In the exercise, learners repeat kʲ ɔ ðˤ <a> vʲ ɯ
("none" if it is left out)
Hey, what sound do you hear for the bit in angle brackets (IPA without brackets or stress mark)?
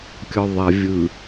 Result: a